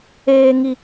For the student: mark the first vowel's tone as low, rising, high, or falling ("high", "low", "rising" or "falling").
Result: high